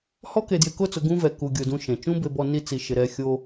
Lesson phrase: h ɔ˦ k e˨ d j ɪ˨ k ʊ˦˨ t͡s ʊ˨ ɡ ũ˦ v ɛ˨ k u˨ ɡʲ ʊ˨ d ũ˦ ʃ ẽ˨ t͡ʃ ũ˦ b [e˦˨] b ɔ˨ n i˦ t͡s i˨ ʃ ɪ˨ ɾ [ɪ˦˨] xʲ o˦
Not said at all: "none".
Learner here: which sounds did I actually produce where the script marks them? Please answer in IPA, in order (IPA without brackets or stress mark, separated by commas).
e˨, ɛ˦˨